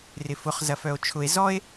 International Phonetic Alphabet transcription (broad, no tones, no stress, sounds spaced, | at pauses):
r ɪ f ʊ χ z ɐ f œ o̯ t͡ʃʰ ʊ e̯ z ɔ e̯